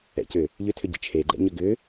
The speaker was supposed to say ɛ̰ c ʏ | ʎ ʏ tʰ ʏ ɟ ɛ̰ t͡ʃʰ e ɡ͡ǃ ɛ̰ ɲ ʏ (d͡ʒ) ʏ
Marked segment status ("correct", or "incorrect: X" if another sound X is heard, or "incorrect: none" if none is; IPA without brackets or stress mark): incorrect: ɡ